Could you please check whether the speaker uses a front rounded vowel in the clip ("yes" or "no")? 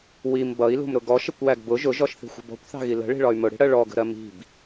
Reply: yes